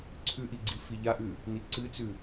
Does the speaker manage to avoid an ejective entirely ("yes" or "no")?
yes